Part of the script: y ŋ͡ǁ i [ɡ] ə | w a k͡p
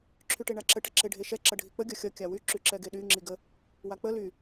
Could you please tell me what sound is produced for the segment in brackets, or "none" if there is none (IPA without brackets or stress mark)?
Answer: ɡ